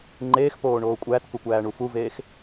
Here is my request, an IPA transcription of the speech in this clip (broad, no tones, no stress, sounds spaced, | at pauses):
ŋ͡ǃ eː x p oː ɳ oː kʷʼ æ t k u kʷ æː ɳ u f u v eː x